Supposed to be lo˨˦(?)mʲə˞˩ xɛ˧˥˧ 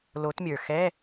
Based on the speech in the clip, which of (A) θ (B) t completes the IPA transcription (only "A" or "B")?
B